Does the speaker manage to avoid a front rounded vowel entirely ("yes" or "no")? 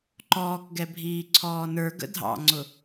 yes